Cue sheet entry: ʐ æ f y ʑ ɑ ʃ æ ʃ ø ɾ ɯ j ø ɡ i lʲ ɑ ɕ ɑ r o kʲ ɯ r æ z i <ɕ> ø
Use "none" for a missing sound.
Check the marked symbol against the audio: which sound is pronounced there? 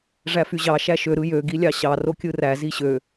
ɕ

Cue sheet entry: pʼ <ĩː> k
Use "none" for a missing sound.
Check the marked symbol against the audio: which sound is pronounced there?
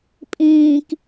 ĩː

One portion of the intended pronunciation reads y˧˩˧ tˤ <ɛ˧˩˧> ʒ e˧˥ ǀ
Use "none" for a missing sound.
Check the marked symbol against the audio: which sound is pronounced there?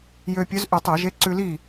ɛ˧˩˧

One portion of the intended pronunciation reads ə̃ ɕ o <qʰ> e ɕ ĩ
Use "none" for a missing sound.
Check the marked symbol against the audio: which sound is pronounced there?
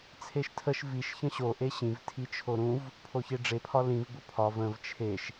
ʔ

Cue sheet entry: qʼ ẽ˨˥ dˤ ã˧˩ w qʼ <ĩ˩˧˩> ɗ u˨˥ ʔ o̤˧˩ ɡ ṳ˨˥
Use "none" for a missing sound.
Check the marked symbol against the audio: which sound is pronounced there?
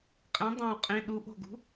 ĩ˩˧˩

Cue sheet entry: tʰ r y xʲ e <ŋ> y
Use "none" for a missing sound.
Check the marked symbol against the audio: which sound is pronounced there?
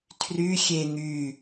ŋ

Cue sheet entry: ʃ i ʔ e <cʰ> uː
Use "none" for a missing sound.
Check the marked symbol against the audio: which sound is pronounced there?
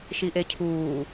cʰ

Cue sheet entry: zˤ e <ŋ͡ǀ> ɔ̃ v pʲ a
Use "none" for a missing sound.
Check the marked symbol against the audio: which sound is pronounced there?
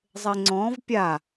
ŋ͡ǀ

